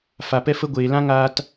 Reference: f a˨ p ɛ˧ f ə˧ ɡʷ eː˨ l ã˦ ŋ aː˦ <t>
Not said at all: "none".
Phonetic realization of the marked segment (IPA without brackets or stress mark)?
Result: t